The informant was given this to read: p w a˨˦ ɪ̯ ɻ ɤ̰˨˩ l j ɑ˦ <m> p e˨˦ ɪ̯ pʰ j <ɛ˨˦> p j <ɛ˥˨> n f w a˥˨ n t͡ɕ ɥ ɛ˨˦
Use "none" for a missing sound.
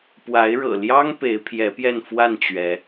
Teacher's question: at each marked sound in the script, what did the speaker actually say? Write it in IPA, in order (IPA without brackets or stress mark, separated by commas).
ŋ, ɛ˨˦, ɛ˥˨